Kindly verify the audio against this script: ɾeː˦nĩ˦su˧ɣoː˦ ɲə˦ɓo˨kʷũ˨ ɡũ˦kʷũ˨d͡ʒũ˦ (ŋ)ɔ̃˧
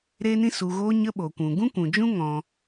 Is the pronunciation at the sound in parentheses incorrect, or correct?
correct